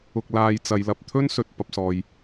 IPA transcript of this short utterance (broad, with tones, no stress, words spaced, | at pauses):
ʊ˧k̚ laː˧jt͡sɐ˨˧j lɐ˨p̚t̪ʰɵ˥n sɵ˨t̚ pɐ˨p̚ sɔː˨j